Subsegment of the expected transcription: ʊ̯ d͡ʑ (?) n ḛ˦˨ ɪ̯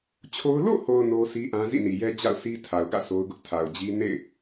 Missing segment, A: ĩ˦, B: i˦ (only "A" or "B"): B